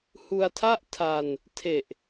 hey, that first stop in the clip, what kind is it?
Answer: aspirated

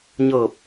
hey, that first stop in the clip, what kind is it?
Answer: plain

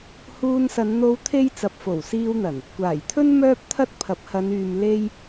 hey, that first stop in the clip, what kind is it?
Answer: aspirated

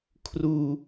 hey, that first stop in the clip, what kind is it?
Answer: aspirated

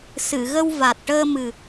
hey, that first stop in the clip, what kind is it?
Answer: plain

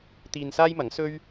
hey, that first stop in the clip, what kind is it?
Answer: plain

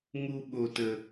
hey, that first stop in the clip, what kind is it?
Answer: implosive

